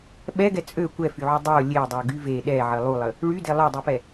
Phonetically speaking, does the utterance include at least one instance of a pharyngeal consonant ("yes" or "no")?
yes